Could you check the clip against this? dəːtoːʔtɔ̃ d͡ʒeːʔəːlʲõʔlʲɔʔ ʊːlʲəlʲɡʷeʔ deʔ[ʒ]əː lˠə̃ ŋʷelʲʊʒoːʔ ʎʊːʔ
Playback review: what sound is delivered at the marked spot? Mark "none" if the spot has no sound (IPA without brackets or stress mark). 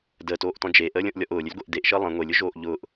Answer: ʃ